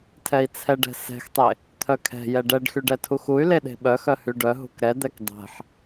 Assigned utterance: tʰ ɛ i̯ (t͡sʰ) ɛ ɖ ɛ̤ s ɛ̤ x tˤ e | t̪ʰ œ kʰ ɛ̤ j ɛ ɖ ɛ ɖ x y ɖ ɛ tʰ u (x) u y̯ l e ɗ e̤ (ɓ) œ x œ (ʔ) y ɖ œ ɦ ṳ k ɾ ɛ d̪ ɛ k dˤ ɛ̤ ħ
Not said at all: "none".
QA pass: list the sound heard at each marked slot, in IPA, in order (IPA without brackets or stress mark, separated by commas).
t͡sʰ, x, ɓ, h